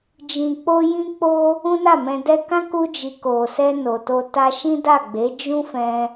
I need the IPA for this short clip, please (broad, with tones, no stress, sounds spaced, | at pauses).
d͡ʒ ĩ˨ k͡p o˧ j ĩ˦ k͡p o˦ | ũ˦ n a˦˨ m ɛ̃˧ d ɛ˧ k ã˦ k u˧ d͡ʒ i˨ k o˨ s ɛ˧ n o˨ t o˧ t a˧ ʃ ĩ˦ d a˦˨ ɡ͡b e˨˦ d͡ʒ ũ˦ f ɛ̃˧